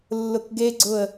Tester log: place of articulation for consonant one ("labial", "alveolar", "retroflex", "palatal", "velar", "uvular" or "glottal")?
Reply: alveolar